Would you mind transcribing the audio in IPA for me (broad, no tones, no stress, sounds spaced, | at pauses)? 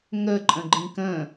ŋ ə ǃʼ ə̃ ɡ͡ǃ ĩ k ə̃